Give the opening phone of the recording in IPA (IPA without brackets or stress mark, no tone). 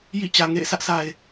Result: j